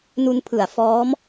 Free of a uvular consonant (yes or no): yes